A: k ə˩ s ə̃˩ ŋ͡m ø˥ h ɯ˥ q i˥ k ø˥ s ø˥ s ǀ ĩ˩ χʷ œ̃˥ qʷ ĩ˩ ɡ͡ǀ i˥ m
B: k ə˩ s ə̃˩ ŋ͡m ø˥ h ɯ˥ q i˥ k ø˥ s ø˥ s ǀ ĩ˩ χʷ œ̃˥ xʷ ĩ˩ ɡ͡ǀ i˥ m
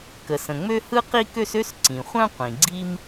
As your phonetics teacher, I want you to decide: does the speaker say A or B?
A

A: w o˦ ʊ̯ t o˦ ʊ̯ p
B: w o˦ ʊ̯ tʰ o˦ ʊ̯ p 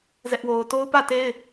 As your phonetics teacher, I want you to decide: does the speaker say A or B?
A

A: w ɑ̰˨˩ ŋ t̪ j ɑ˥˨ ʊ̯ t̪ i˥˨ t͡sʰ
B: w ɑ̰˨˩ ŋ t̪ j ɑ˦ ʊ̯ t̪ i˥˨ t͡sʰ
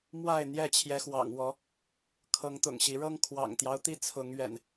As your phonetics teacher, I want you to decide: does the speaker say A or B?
B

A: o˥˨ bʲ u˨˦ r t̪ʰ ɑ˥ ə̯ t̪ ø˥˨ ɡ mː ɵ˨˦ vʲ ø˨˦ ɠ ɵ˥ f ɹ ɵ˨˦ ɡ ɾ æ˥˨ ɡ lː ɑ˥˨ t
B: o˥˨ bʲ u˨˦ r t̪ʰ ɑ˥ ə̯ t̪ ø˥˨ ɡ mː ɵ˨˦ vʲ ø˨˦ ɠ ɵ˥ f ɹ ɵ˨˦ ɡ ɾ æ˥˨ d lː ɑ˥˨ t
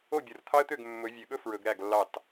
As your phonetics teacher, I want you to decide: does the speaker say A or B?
A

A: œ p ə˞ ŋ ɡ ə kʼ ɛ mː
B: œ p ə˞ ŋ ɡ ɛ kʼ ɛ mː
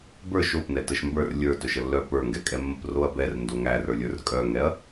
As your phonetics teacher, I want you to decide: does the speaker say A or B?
B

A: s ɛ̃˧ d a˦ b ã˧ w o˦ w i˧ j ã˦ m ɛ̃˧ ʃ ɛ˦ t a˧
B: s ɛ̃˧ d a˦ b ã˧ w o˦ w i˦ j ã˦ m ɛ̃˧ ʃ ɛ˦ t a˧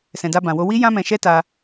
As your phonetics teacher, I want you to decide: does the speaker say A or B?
B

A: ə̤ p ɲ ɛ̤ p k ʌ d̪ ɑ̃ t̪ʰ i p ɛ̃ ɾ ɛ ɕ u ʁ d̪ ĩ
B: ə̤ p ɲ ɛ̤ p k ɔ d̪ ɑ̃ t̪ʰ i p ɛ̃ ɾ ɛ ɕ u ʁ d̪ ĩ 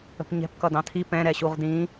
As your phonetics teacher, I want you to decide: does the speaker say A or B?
A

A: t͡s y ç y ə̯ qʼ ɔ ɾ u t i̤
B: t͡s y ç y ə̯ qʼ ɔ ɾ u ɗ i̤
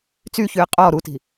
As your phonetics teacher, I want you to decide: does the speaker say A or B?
A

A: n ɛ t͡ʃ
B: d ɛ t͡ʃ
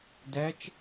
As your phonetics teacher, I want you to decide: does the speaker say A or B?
B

